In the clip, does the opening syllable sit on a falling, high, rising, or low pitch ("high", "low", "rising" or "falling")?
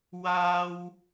low